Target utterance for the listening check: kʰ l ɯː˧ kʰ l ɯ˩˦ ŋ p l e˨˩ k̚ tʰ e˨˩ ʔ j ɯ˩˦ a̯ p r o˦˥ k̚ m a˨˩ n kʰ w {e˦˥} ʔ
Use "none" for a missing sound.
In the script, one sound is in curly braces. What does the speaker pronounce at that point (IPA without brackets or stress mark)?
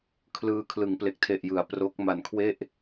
e˥˩